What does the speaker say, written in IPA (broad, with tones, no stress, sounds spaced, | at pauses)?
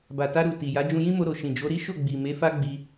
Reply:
b a˨ t a˧ ɾ u˨ t i˨ j a˨˦ d͡ʒ ũ˧ j ĩ˦ m o˧ ɾ o˨ ʃ ĩ˨ d͡ʒ o˨˦ ɾ i˦ ʃ o˦˨ ɡ͡b i˨ m e˨˦ f a˦ ɡ͡b i˧